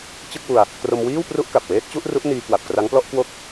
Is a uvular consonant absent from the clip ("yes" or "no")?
yes